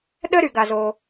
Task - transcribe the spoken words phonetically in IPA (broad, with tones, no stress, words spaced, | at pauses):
ɗə˥ ɾy˩ɡa˩zo˩